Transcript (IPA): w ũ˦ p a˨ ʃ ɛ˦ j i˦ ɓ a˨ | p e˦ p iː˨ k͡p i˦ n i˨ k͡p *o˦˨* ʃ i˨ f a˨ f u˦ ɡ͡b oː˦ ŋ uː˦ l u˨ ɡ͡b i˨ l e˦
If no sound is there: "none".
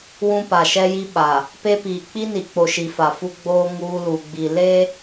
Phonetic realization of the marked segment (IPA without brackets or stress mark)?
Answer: o˨